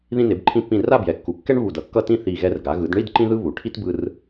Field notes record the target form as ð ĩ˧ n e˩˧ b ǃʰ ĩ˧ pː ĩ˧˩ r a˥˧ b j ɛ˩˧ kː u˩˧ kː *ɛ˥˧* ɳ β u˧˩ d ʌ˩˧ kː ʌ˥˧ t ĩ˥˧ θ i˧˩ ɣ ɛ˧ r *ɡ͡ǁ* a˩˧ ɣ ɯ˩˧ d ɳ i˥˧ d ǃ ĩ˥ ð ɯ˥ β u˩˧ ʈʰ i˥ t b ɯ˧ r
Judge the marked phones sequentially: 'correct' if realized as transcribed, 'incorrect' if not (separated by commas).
incorrect, incorrect